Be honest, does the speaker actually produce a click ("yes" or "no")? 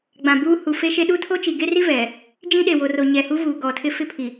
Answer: no